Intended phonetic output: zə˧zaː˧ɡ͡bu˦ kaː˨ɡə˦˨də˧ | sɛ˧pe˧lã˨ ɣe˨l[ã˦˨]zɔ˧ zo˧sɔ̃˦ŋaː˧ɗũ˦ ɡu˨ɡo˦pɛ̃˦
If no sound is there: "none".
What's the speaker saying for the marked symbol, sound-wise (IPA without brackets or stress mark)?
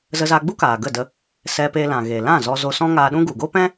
ã˦˨